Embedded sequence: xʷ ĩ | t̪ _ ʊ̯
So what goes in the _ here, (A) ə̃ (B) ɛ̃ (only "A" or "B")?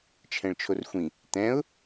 B